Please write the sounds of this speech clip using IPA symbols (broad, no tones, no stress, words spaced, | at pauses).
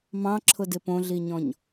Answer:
mɑ̃ǁʰʊdɪ põɮiɲɔ̃ɲ